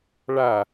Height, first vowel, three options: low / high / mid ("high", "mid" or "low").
low